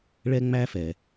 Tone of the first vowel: high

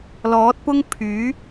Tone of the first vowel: rising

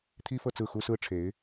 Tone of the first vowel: high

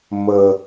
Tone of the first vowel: low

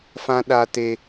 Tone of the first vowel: high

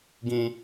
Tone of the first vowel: high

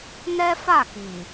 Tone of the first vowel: high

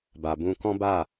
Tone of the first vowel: low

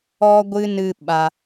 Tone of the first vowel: high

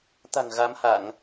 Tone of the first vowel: low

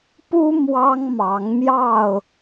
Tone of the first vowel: high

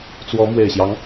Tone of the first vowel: rising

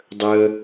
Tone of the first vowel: high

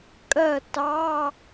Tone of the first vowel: falling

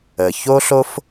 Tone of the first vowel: low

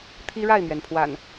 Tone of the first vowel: high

